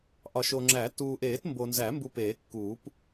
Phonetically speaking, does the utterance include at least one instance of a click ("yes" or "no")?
yes